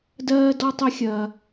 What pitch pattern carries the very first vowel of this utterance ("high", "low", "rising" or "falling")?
high